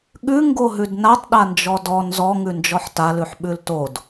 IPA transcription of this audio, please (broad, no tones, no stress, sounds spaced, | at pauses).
ɠ ʉ ŋ ɡ o ɦ ʉ d n a tˤ ɗ a n d͡ʒ ɔ d ɔ n z ɔ ŋ ʉ n d͡ʒ ɔ ħ t a l ʉ ħ ɓ ʉ l t o d